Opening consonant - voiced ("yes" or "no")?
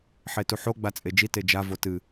no